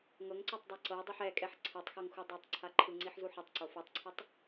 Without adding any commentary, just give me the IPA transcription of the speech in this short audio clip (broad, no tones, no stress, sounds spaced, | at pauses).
ŋ ɤ ŋ ǀ o tˤ dˤ e ǀ ɤ dˤ i ħ ɛ kʼ ɛ ħ ǀʰ ɛ tˤ x ɤ ŋ x u dˤ i tˤ ǀʰ a ǃʰ ɯ ŋ͡ǀ i ħ z u ħ ɤ tˤ ǀ o f u tˤ ǀʰ ɤ tˤ